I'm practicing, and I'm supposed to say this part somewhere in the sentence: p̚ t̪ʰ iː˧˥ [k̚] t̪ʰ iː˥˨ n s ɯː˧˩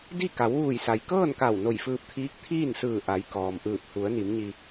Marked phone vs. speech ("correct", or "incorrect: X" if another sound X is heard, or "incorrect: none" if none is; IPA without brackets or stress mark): correct